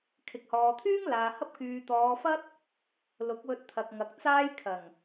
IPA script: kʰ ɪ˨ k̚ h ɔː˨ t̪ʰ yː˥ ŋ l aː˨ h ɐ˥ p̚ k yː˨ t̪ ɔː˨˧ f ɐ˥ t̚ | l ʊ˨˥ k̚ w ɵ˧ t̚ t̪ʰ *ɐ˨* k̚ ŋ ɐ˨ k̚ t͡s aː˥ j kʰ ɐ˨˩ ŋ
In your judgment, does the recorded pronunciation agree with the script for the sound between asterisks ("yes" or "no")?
yes